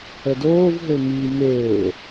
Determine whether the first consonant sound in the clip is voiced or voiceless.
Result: voiced